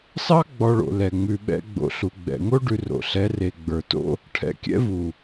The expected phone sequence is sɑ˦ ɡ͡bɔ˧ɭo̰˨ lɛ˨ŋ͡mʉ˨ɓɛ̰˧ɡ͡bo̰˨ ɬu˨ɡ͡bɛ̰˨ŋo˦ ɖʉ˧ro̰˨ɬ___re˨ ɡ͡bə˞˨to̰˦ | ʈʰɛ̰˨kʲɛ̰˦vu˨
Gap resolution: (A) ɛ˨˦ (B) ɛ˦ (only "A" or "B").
A